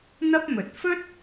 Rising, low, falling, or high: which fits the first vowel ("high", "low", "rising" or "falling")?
high